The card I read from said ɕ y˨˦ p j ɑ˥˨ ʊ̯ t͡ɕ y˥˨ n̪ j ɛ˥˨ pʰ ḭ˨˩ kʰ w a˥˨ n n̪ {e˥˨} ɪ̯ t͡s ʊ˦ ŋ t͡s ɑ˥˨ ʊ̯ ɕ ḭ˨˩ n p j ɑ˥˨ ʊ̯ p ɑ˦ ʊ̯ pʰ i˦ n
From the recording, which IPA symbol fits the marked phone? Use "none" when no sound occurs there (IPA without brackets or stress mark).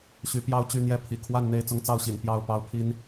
e˥˨